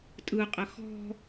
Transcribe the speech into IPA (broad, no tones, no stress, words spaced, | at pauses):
tʼɯqʼə xɔ̤